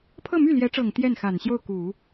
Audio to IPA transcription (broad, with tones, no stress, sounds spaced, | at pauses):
pʰ ɤ˥˧ m y˥˩ l j ɛ˧˥ ʈ͡ʂ ɤ˨˩ ŋ t̪ j ɛ˥˩ n x a˨˩ n ɕ j o˥˩ ʊ̯ k u˨˩˦